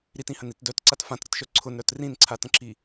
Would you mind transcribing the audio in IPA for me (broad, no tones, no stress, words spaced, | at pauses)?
ɾitĩhə̃nit dœtǀat fãtɾətʃœ ǀʰʊnɾœt rĩnǀʰatə̃ǁi